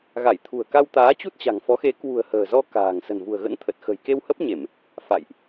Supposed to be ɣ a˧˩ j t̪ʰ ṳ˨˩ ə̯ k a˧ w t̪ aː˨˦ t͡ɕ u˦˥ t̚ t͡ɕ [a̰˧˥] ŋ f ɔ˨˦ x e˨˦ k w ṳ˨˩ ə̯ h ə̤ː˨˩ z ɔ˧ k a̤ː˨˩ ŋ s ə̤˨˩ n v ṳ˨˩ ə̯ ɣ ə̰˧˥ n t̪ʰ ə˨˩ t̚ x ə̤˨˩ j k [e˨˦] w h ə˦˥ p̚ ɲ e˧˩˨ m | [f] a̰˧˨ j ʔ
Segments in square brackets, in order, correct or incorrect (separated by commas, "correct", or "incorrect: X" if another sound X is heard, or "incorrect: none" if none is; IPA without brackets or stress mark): incorrect: a̤˨˩, incorrect: e˧, correct